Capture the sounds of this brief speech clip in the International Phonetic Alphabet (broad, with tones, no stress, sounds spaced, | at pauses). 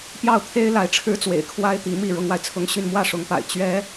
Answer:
p j ɑ˥˩ ʊ̯ t̪ʰ e˥ ɪ̯ l a˧˥ ɪ̯ ʈ͡ʂʰ ɻ̩˥ t͡s w ḛ˨˩ ɪ̯ kʰ w a˥ ɪ̯ t̪ i˧˥ m i˥˩ ɻ ʊ˥ ŋ w a˨ ɪ̯ t͡sʰ ʊ˥ ŋ ɕ y˥˧ n m w ä˥˩ ʂ ʊ˧˥ ŋ p a̰˨˩ ɪ̯ t͡ɕ ɥ ɛ˥